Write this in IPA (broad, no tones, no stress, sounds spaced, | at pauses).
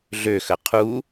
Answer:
ɮ ø x ə qʰ u